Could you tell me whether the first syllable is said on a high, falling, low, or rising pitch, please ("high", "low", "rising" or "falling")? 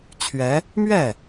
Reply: rising